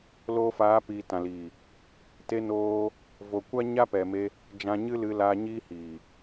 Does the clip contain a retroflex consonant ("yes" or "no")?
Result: no